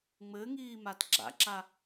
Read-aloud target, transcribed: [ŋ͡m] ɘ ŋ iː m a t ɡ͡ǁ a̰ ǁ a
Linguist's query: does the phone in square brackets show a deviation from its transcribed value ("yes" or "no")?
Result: no